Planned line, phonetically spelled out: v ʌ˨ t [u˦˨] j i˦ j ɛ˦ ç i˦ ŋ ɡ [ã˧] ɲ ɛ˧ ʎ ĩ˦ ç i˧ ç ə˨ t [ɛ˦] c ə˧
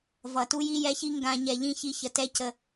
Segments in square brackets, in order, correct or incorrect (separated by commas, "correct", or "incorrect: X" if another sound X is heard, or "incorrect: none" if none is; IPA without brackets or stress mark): incorrect: u˦, correct, correct